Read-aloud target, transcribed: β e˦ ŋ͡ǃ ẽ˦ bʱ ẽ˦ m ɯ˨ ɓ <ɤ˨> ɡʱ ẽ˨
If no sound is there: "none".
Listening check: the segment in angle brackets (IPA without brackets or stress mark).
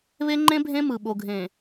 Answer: o˨